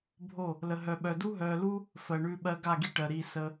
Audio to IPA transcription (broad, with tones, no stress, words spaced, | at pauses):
bʱo˦˨ | lə˧ɦœ˧ɓœ˧ du˦ɦœː˧lu˦ | fɜ˨ɳʉ˧ɓɜ˧ɡa˦˨ ɡi˦ʈɜ˨ɾiː˧ sə˦